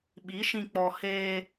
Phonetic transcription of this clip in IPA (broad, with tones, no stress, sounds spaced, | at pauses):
ɓ i˨˦ ʃ ĩ˧ k͡p ɔ˧ h eː˦